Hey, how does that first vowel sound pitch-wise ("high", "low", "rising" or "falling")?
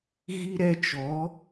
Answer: high